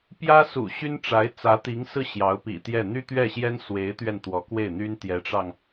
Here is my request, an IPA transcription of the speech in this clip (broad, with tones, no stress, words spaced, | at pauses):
pjä˥sṵ˨˩ ɕy˥nʈ͡ʂa˧˥ɪ̯ t͡sä˧˥t̪i˧˥ŋsɹ̩˥˩ ɕjɑ˧˥ʊ̯pḭ˨˩t̪jɛ˥˩ n̪y˥t̪ɥɛ˥˩ɕjɛ˥n swe˧˥ɪ̯t̪ɥɛ˧n t̪wɔ˧˥kwe˥˩ɪ̯n̪y˥n t̪jɛ˧˥ʈ͡ʂɑ˧ŋ